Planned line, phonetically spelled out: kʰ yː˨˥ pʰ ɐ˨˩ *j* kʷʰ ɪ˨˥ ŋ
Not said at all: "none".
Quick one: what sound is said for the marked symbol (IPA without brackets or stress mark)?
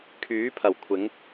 w